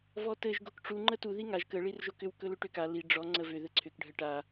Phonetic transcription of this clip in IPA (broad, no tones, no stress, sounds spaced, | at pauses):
v ɔ t ɘ ʒ ɡ o k ʈ͡ʂ u ŋ͡ǃ ə t u ð i ŋ a ʒ k ə ɭ i r ʒ o k ʏ w k ɵ l ʏ ʈ ʏ k a l i ɖ͡ʐ ɔ ŋ͡ǀ ə v ʏ ð ɘ ǀʰ ʏ k ɖʱ ə ʈ a